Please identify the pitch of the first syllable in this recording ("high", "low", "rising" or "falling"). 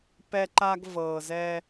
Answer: high